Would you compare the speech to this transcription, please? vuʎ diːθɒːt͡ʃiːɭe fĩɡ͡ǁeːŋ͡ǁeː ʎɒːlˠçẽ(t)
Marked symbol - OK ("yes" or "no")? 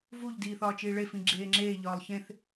no